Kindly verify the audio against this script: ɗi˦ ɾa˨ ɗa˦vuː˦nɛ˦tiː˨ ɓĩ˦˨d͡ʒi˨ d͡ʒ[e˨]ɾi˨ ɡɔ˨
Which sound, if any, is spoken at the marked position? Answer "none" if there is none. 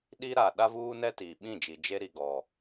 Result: e˦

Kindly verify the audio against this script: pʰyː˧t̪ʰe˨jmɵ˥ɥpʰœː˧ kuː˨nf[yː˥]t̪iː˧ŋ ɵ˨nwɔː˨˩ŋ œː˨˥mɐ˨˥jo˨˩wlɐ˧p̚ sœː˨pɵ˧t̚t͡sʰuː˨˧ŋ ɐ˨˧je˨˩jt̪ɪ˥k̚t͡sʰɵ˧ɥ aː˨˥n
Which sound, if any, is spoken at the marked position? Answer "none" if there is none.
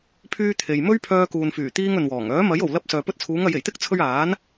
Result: yː˨˩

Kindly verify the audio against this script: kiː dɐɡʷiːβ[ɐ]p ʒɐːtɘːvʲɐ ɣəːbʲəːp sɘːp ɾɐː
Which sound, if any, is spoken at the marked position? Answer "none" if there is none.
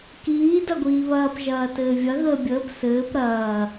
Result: ɐː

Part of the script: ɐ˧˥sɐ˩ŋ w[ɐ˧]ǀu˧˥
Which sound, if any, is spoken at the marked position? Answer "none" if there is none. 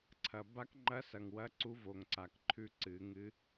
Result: ɐ˧˥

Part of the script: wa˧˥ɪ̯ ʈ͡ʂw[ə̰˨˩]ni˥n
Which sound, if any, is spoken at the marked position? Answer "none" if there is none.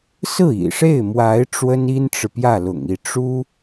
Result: ə˥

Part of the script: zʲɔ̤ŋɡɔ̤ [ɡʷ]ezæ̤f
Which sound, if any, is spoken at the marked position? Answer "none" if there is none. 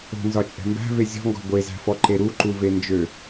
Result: ɡʷ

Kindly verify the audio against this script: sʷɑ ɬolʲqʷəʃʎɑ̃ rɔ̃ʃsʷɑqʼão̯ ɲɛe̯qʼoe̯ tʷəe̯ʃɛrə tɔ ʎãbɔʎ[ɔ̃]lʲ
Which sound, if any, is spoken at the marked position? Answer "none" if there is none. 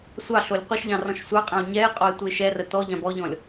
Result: ɔ̃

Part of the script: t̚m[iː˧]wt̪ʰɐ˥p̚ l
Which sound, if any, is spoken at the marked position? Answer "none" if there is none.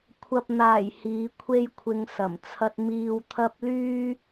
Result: iː˧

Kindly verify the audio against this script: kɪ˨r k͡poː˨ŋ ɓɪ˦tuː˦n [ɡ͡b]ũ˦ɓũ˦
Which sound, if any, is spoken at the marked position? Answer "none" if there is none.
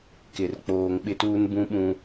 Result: b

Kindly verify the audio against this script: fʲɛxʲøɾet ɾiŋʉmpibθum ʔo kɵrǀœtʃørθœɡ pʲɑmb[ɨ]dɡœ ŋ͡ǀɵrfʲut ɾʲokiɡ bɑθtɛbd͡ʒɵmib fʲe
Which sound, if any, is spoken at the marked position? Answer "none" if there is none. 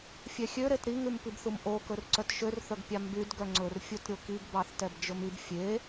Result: y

